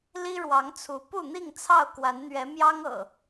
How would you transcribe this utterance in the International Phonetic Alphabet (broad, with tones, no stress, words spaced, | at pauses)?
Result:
li˦ɻwɑ˨˦ŋt͡sʰu˨˦ pu˥˨n̪i˥˨ŋt͡sʰɑ˥˨ʊ̯ kwa˨˦nn̪ɥɛ˨˦mjɑ˦ŋɤ̰˨˩